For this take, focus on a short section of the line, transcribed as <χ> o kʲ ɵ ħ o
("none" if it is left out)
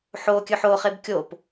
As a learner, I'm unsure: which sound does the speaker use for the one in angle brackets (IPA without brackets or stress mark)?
ħ